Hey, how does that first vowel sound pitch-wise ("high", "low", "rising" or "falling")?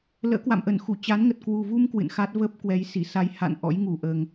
rising